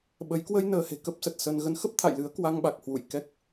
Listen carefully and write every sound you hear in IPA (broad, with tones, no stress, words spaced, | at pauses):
ɓə˨˦j kwə˧j nəː˧he̤˨˩kə˦˥p̚sə˨˩t̚ sə˧n ɣə˨˦nxə˦˥p̚t̪ʰa̰˧˨jlɨ˨˦ə̯ kwa˧ŋɓa˨˩k̚ hwṵ˧˨jkɛ˦˥k̚